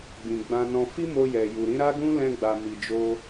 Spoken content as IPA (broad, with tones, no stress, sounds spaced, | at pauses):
ɡ͡b ĩ˨ ɡ͡b ã˧ n ɔ̃˧ f i˦ m o˧ j ɛ˨ j u˨ ɾ ĩ˨˦ ɾ a˦ ɡ ũ˦ l ɛ̃˧ ɡ͡b a˨ m i˨ d͡ʒ o˧